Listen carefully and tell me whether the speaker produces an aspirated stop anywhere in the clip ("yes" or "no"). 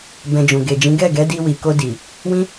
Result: no